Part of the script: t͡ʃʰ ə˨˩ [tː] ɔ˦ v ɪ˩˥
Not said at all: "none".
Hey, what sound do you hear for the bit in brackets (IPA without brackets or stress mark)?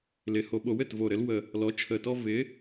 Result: t